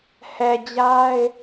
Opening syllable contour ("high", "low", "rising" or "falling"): low